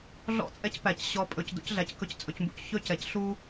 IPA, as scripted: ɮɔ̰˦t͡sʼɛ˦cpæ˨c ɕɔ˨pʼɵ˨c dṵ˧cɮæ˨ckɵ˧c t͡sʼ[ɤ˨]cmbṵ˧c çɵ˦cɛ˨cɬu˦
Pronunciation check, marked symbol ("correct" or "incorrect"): incorrect